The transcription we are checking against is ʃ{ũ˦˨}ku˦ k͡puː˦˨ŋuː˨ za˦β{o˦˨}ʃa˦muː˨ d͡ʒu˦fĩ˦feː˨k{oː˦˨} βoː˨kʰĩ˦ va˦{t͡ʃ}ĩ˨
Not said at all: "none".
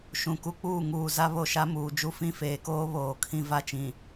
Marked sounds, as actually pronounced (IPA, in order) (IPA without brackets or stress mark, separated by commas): ũ˨, o˦˨, oː˦, t͡ʃ